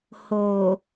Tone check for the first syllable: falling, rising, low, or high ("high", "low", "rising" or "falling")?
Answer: low